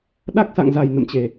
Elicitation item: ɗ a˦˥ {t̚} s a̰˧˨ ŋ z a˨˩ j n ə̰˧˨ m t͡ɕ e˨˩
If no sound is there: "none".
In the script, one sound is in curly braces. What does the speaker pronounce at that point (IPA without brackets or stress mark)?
k̚